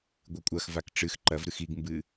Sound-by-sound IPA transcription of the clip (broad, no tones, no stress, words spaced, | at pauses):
ɡʷɨkʷʼɐxvak ʈ͡ʂɨx ǃɐvɾɨx iɡmbɨ